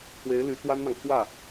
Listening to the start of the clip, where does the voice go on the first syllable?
rising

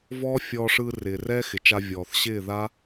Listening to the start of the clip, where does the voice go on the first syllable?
high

